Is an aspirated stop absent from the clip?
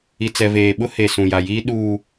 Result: yes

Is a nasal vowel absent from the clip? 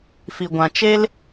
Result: no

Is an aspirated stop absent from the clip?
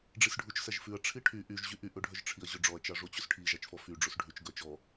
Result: no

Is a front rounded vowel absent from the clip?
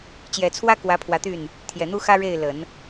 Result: no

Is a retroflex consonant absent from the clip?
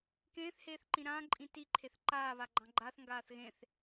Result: yes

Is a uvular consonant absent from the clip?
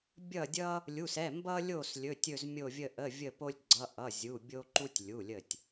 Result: yes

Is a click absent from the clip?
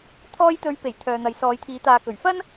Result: yes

